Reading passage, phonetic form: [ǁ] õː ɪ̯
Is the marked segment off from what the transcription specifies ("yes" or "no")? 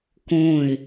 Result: yes